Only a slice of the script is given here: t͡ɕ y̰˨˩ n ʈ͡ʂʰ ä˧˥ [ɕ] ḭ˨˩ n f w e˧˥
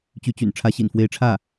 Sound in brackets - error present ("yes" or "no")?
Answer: no